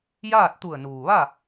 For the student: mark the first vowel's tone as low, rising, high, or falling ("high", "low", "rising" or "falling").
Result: falling